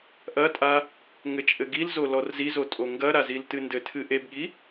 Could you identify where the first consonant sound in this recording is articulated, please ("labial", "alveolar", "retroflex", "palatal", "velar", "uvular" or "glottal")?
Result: glottal